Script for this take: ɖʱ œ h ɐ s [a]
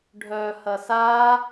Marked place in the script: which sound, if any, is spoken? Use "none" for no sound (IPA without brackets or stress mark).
a